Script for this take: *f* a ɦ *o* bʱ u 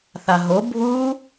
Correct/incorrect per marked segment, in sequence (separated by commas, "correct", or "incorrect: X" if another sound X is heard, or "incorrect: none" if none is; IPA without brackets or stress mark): incorrect: θ, correct